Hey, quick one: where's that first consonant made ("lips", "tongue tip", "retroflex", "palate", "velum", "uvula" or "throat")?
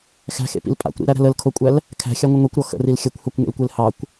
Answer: velum